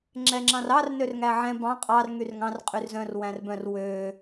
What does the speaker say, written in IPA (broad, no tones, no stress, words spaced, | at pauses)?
ŋ͡ǁɛŋ͡ǁɑ̃rɑr nørŋæʕɛ̃ bɑ̃ qʼɑr ŋyrŋɑ̃r qʼyrzœ̃r wæ̃rbœ̃r wø